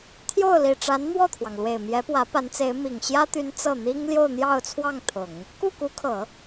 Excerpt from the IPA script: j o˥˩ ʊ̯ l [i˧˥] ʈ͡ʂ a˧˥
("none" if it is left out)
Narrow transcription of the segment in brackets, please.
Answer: i˨˩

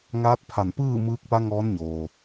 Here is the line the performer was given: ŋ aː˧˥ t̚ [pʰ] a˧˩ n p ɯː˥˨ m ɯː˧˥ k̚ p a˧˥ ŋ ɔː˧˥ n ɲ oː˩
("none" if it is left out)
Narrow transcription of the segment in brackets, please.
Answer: pʰ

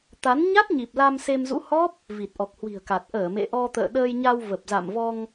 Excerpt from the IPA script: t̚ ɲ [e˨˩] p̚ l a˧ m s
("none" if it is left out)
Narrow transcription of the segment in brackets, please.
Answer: i˨˩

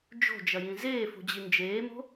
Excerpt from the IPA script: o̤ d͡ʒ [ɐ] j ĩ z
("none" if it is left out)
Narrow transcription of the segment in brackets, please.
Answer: ɐ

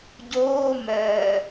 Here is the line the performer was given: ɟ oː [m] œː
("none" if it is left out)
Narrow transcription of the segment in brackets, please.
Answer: m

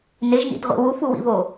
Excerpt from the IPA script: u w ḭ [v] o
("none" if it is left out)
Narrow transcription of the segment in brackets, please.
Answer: v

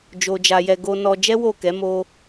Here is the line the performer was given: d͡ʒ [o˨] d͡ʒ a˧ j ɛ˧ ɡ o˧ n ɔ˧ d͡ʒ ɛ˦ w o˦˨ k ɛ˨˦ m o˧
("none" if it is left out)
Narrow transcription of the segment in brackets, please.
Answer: o˧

